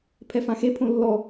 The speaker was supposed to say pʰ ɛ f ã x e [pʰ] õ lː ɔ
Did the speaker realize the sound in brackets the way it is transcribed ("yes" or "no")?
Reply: yes